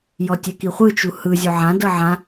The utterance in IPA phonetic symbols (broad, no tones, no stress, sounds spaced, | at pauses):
j ɔ tʲ ɛ k i χʷ ɯ t͡ʃ u h ɯ zʲ o ʕ ã d ɤ ʕ ã